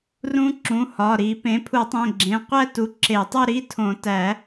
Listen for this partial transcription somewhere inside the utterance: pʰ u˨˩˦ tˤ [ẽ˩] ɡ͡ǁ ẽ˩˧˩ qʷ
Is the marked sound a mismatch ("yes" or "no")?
yes